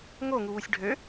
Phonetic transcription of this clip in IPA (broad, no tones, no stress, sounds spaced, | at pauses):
ŋ o ŋ u w u sʲ ɖʱ ø